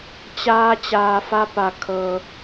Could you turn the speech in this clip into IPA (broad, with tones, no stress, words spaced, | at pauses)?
t͡ɕaː˧ t͡ɕaː˩fa˧pa˩ kʰɤː˩